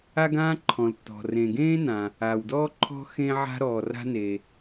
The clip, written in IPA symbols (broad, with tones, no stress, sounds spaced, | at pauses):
a˥ ɡ ãː˥ ǃʰ ɔ̃˩ l tː ɔ̤˩ r ẽ˩ ɡ ẽː˥ n ã˩ | a˩ w d ɔː˥ ǃʰ ɔ̤˥ x ẽː˥ ʕ a̤˥ ɾ ɔː˩ r a̤˥ n e˩